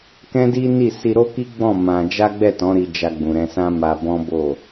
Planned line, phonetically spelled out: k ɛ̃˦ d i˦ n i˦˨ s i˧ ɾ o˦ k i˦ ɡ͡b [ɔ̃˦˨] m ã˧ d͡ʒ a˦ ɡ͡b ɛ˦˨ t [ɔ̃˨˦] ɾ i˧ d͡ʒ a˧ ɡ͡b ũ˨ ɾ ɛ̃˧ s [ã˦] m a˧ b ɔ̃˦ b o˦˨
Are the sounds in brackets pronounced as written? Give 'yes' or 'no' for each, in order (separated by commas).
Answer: yes, yes, yes